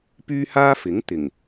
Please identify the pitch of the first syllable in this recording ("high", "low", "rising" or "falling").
high